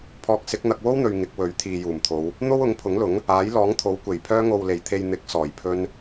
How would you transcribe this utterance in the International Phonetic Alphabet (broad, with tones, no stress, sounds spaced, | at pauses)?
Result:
pʰ ɔː˧ k̚ s ɪ˨˥ k̚ n̪ ɐ˧ k̚ w o˥ w n̪ ɵ˨ ɥ ŋ ɪ˨˥ k̚ w ɵ˨˥ ɥ t̪ʰ iː˨ j uː˨˩ m t̪ʰ o˨˧ w | n̪ o˥ w ʊ˨˥ ŋ pʰ ʊ˨˥ ŋ l ʊ˨˥ ŋ | aː˨˥ j l ɔː˨˥ ŋ t̪ʰ o˨˥ w kʷ e˨˩ j pʰ œː˧ ŋ o˨ w l e˨˩ j t̪ʰ e˨ j n̪ ɪ˨˥ k̚ s ɔː˨˩ j pʰ ɵ˧ n